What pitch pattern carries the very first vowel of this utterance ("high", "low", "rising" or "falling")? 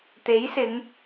rising